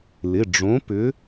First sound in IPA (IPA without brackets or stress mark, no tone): l